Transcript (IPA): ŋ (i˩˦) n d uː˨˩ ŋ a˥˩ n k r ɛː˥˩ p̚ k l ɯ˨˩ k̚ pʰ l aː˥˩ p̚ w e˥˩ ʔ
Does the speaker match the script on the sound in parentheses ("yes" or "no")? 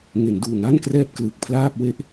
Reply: no